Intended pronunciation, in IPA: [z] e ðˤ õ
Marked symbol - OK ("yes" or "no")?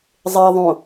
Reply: no